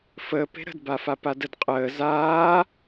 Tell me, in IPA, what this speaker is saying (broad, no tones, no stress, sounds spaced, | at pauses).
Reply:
f əː p e̤ ɾ ə̤ d b aː f a p a d ə d qʼ əː z aː